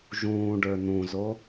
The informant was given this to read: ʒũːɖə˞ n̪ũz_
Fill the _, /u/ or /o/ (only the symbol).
o